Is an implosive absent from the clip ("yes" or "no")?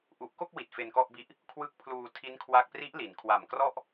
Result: yes